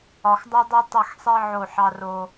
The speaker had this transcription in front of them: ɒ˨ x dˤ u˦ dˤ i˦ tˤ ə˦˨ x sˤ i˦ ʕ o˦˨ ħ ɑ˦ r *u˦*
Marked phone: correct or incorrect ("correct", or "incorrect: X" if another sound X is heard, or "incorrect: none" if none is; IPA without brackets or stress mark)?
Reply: incorrect: o˦